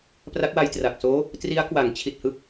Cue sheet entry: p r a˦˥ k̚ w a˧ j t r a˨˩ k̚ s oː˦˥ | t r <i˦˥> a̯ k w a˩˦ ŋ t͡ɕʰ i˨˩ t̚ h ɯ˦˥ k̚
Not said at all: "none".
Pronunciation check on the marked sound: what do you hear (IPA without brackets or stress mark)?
i˦˥